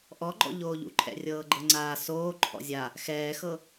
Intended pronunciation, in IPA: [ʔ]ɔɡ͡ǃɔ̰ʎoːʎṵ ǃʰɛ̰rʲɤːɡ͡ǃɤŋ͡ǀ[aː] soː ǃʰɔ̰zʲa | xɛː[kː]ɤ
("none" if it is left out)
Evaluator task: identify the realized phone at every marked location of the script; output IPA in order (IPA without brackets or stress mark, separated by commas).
ʔ, aː, x